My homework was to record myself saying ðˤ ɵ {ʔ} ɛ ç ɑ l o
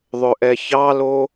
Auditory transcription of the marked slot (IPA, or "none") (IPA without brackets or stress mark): ʔ